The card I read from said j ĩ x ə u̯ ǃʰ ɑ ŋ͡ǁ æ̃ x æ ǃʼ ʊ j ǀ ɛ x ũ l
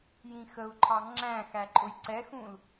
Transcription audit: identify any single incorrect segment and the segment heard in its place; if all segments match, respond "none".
none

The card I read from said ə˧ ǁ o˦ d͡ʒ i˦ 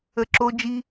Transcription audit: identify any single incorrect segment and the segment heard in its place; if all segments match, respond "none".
none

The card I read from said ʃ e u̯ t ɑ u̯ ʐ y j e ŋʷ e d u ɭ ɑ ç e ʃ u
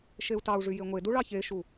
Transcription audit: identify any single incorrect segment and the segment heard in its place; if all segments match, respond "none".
none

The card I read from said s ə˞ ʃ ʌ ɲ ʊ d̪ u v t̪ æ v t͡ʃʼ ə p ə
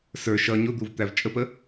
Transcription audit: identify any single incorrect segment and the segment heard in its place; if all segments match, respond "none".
none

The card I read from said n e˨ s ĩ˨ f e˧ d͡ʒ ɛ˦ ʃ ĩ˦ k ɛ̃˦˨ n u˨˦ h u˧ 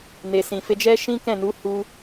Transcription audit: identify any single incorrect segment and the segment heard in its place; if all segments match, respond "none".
none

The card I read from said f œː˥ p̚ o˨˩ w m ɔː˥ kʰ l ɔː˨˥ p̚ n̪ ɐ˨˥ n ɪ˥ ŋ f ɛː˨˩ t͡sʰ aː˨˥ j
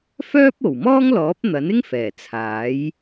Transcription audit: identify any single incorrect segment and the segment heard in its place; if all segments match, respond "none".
kʰ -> ŋ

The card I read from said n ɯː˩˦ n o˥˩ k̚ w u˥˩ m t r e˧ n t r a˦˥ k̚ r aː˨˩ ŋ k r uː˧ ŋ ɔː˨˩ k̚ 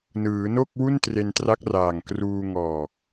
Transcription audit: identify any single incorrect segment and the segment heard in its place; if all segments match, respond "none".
m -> n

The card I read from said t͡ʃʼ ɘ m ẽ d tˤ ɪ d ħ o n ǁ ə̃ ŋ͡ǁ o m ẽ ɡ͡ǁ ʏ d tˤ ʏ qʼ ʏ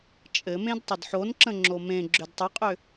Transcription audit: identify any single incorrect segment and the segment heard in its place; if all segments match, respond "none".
none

